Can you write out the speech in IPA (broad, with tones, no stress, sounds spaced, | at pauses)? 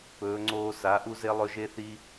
p ɵː˨˦ ŋ͡ǀ oː˦ s a˨˦ ʔ u˦ z e˦ lˠ ɵ˦ ʒ e˦ θ i˦